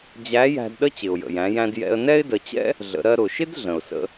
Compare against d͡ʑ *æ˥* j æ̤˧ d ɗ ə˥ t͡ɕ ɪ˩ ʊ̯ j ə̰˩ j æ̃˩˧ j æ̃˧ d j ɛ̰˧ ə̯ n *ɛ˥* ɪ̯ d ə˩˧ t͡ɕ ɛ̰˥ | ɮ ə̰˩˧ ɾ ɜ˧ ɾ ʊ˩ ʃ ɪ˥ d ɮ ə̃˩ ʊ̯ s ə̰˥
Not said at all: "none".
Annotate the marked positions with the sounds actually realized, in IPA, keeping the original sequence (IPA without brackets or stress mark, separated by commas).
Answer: æ˧˥, ɛ˥